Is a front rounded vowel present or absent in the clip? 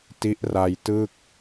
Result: absent